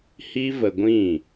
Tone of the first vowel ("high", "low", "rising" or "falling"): high